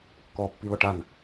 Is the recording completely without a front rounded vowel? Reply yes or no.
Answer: yes